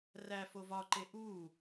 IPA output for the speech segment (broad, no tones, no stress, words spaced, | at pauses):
ræ fovɒǃe ʔu